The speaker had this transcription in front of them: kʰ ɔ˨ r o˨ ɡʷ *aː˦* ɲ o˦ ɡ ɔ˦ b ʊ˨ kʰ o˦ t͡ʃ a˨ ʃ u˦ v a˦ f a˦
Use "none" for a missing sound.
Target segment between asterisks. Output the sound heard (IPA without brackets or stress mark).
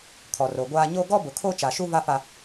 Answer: aː˦